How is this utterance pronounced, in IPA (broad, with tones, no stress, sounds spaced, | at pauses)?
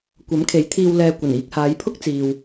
kʷ ɐ˨˥ m kʰ e˨˥ j t̪ʰ iː˧ w l ɛː˨ kʷ ɐ˨˩ n iː˧ k̚ h aː˨˧ j pʰ ʊ˥ k̚ t͡s iː˨ w